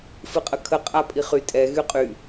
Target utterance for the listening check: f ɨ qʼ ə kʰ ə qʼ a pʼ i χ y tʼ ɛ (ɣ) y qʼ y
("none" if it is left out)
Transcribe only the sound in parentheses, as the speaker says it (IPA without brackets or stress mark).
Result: ɣ